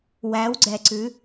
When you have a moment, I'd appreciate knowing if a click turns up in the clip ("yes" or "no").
yes